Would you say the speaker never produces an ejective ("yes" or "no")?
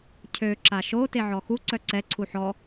yes